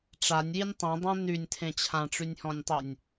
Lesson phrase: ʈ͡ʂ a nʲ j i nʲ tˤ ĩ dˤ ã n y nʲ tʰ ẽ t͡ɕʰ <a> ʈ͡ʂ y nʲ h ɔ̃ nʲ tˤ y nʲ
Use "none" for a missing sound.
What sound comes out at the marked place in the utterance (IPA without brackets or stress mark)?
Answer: ã